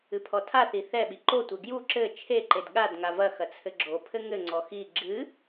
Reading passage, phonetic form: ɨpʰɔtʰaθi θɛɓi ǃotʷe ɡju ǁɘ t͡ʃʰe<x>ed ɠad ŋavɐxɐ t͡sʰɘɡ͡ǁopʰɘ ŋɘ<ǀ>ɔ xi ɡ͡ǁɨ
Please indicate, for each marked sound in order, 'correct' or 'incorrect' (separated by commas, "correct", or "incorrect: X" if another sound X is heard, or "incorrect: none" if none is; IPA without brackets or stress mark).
incorrect: ǃ, incorrect: ŋ͡ǀ